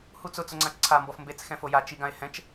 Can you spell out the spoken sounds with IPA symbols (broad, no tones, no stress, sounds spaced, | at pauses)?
h u t͡s ʊ t͡s ʊ ŋ͡ǀ ã t͡ʃ ǀʰ a m b ɔ f m b e t͡s x ɛ̃ f o j a t͡ʃ i ɡ ã e̯ h ɛ̃ t͡ʃ